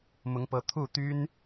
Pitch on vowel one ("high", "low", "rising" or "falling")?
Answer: rising